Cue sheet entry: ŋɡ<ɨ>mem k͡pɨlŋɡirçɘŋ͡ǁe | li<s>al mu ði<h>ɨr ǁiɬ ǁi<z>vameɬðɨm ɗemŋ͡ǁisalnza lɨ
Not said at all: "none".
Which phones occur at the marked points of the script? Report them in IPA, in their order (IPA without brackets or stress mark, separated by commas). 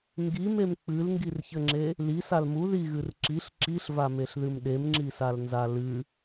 i, s, ɣ, ɬ